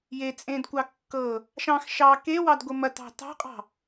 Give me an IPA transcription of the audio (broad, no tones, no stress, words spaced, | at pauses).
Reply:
jet͡sʼẽdkʷɑ kːɤ | ʃɑ̃x ʃɑ kewɑdɡʷə mɐtɑ̤ tɑ̤qʼɑ̤